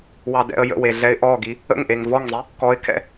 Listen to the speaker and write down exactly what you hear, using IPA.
w ɑ d ɛ̰ ə̯ j ə̰ w e ɮ ɛ ɪ̯ ʔ ɔ ɡ i | ə̰ ŋ ʔ e ŋ v ɔ ŋ zˤ i | k ɔ ɪ̯ kʰ ɛ̰

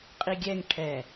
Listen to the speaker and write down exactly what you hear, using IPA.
qʼ i ɡʲ ɛ ŋ ʈʰ ɛ

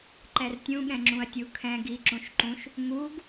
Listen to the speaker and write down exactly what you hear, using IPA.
ǃ ɛ r tʲ ũ ɠ ɛ̃ ŋ͡ǁ ũ ɐ̯ tʲ u kʰ ɛ̃ ɡ i ǁ ũ ʃ ǃ ũ ʃ | ŋ u ɡ

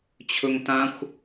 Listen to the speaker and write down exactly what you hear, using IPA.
t͡ɕʰ ɵ ŋ t ã xʷ

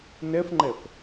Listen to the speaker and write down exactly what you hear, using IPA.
n ɛ f ŋ͡ǃ ɛ f

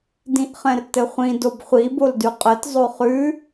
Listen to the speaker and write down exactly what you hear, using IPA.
d ĩ ʔ χ ɛ̃ r t ɘ χʷ ĩ d o b χʷ i b o l d ʉ qʼ ɘ t zˤ o χ ʉ

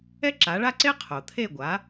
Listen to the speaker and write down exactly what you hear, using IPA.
ɛ˥ ǁ a˩˥ ɭ a˥ ǀ e˥ qʰ o˩ t̪ʰ e˥˩ ɡʷ a˩˥

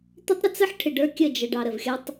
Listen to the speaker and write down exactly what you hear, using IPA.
t̪ ɪ˦ tˤ ɾ ɪ˦ t͡s ə˦ ħ ʈʰ ɪ˨ ɖ ə˞˦ kʲ ə˦˨ d͡ʒ ə˨ ɖ ɑ˨ ɾ ə˨ v xʲ ʌ˦ tˤ

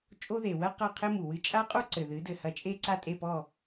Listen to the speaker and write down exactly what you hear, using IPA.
t͡ʃʼ o˥ ð e˩ w ɐ˥ q ɐ˥˩ qʰ e˥ m u˩ w ɨ˥˩ t͡ʃʼ a˥ qʼ u˥ ǀ ɘ˩ ð ɨ˩˥ d ɘ˩ h ɐ˧ t͡ʃʼ e˥ ǀ a˥˩ tʼ e˥˩ p ɔ˥˩

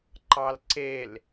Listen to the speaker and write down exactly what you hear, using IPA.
ǃ ɑ l ǀ e l

